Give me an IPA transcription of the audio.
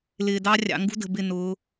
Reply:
l ɪː˨ d ɑ˦ rʲ ɑ̰˨ ŋ ɡ ṳ˦ d ə̤˨ b ɪ˦˨ n ʊː˨˦

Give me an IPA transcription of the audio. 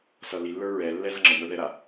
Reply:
s ʌ l i lː ə˞ ɹ ɛ lː ɛ z ʌ ŋ͡ǁ ə ŋ ə˞ ð ɛ ɾ a

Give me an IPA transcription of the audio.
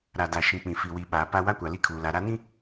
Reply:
ɾ a˨ d a˨ ʃ ĩ˨ k͡p ĩ˨ f i˨ w i˨ ɓ aː˨ p a˦ w a˦ kʷ a˨ l i˦ kʰ uː˨ l a˨ ɾ a˦ n ĩ˦

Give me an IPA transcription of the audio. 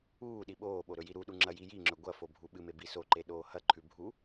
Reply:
uː ɗ i ɓ oː ɓ o ɾ ɵ j i ɾ u ɗ u ŋ͡ǁ ɐ j i j i ŋ͡ǁ ɵ ɡʷ ɐ f o bʱ u ɓ ɨ m e b i s o ǃ e ɗ oː h ɐ ǃʰ ʉ bʱ u

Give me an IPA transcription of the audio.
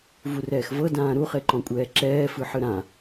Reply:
v u r ɛː x v ɤ d ãː ɾ u χ e ǃ ɔ̃ kʷʼ ɛː ǁ ɛː f ɯ ħ ɯ ɾ ã

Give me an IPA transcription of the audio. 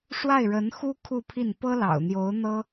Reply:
ʂ w a˥˩ ɪ̯ ɻ ə˧˥ n x u˥ kʰ u˥˧ pʰ i˥˩ n p ɤ˥ l ɑ̰˨˩ ʊ̯ n̪ j o˧˥ ʊ̯ n̪ ɤ˥

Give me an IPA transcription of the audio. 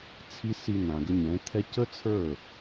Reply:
t͡sʰ i˦ s i˧ n̪ ã˨ ɡ ə˧ ɲ ɛ̃˨˦ t̪ʰ ɛ˦ c ə˦ t͡sʰ ə˞˦˨

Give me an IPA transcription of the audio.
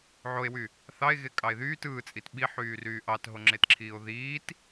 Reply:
ʕ o e̯ w y | θ ɑ e̯ ɣ e kʼ ɑ e̯ ð yː t ɯː t͡sʼ i t ɓ i ħ yː r yː ʔ ɑ t ɦ o ŋ͡ǁ e t ǁʰ iː o̯ ð iː t

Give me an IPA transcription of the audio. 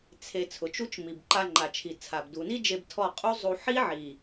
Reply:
t͡sʰ e˧ t͡sʰ ʊ˨ t͡ʃ u˦ t͡ʃ m i˨ b ǃ a˧ ŋ͡ǃ a˨ t͡ʃʰ i˨ t͡sʰ a˨ b d u˨ n i˦ d͡ʒ e˧ b tʰ ɔ˦˨ qʼ u˦ zˤ u˧ ħ i˦ ʕ i˨

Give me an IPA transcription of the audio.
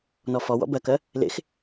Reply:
n ɔ f ɔ w ɔ̰ b ɜ k ɜ | l ḛ x

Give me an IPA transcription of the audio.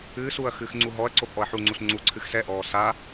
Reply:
ɨː s uː ɐ̯ x ɨː x ŋ͡ǀ u ɦ ɔ ɐ̯ ǀ o pʼ ɔ ɐ̯ ħ u ŋ͡ǀ u s ŋ͡ǀ u ǀʰ ɨ x s ɛ ʔ ɔː s a

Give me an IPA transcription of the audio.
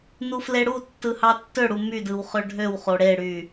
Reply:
n u f l e ɽ u tː ɯ h ɑ tː ø ɽ u m y d ɯ w χ ø ɖʱ ø w χ o ɽ e ɽ y

